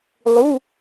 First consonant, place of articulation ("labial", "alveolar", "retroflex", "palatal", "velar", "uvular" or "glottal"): alveolar